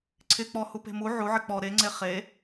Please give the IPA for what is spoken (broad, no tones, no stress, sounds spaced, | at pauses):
ǀʰ ɪ k͡p ɔ h u p e̤ m u ʕ u ʕ ɪ k͡p ɔ ɾ e ŋ͡ǀ e χ e